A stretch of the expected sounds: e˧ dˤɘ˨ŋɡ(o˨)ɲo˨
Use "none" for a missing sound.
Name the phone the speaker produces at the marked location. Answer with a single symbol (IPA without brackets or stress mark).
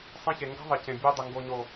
o˨